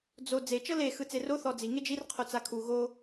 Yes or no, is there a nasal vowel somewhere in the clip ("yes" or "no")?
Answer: no